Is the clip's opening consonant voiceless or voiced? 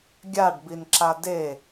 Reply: voiced